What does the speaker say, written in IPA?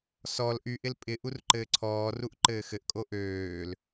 s ɔ l ʔ y ʔ ɪ l pʼ ɪ ʔ u r ǃ ɘː ǀʰ ɔː r u ʔ ǃ ɘː x ɘ ʔ kʼ o ʔ øː l

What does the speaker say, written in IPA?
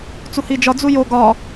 t͡s u h i d͡ʒ ɒ d͡z u j o ɡ ɒ

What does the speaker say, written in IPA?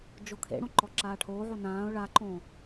d͡ʒ o kʰ ḛ ɽ õ ǃ ɔ ǁ aː ʈʰ oː ʕ o n ãː ʊ̯ ɭ a ǃ õ

